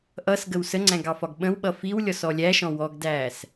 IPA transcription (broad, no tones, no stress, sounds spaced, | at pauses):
ʔ ʌ s ɡ ə w s ə ŋ͡ǀ æ̃ ɡ ɑ f ɒ ɡ ɓ ə̃ w ɓ ʌ f i w lʲ ɔ s ɔ lʲ æ ʃ ɔ̃ w ɔ ɡ d æː s